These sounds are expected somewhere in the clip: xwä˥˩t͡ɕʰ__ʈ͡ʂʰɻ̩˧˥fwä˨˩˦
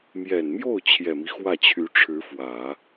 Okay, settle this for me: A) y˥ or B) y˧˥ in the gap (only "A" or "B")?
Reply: B